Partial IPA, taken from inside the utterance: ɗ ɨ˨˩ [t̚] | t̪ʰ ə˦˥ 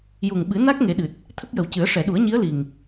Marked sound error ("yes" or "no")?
no